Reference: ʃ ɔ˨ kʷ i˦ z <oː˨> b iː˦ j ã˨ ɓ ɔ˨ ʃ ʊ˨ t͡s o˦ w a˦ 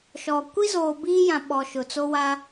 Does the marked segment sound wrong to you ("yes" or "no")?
no